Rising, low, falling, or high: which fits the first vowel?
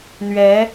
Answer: rising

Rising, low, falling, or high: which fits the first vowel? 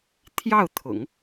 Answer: falling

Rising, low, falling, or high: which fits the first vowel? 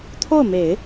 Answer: falling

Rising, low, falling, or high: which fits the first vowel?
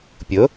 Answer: rising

